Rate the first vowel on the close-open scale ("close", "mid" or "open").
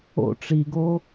mid